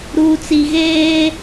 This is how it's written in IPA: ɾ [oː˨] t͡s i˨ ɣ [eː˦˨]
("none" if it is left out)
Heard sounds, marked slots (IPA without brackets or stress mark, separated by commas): uː˨, eː˦